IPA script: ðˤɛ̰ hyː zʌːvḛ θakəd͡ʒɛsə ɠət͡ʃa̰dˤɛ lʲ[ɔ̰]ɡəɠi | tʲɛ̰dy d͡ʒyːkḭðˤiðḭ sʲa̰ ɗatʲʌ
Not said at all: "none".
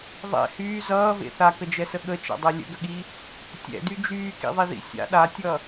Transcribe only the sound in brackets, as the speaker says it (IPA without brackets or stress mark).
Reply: ə̰